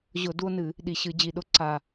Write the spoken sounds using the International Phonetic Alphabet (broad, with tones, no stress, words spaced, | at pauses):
ʑʊ˧˩˧du˦o̯nɨ˧˩˧ | ɗi˨˩ɕɨ˧˩˧d͡ʑi˨˩ ɗʊ˦ǀa˨˩